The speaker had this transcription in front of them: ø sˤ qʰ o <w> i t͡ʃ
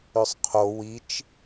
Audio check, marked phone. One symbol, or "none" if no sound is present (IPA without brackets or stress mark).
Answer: w